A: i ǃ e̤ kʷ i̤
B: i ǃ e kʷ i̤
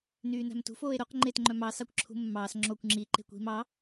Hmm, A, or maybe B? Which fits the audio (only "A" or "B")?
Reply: A